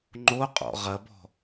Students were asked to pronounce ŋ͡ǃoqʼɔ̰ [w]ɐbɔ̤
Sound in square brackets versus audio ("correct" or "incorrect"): incorrect